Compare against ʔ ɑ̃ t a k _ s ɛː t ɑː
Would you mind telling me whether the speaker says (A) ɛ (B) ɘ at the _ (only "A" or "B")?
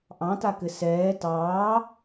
B